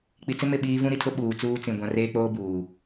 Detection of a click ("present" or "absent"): absent